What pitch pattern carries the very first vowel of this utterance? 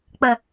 low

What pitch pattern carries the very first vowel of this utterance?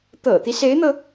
low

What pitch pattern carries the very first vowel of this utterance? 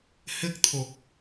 high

